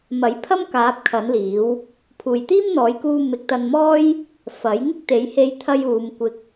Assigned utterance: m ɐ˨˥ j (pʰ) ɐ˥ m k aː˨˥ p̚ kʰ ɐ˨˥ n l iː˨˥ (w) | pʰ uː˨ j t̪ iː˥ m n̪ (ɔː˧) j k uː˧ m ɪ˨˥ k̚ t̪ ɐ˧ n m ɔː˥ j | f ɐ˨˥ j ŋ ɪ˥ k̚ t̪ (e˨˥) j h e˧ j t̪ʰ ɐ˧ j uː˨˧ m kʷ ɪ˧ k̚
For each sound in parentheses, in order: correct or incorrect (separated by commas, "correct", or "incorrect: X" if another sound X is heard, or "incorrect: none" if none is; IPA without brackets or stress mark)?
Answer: correct, correct, incorrect: ɔː˨˥, correct